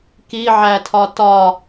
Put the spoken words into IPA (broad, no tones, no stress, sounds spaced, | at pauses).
k i ʕ æ tʰ ɒ t ɒ